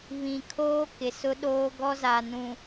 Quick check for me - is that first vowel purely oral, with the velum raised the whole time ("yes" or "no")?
no